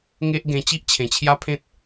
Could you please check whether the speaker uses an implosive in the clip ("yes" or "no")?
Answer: no